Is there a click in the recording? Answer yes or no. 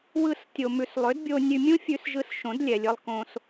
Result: no